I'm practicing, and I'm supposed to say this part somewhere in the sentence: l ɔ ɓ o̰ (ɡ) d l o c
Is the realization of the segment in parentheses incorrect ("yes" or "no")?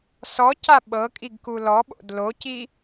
yes